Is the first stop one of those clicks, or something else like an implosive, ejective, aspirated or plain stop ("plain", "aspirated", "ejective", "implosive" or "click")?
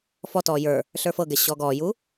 plain